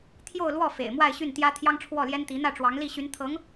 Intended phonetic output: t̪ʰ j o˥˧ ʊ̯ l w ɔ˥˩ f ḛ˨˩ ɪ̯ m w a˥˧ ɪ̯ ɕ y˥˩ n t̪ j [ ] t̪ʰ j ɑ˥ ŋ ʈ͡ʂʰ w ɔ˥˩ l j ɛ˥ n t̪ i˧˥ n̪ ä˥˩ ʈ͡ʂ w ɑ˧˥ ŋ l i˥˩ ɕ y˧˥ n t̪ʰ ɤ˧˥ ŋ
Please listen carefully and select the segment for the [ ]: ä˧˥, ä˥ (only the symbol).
ä˥